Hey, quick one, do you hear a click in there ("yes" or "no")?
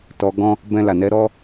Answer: no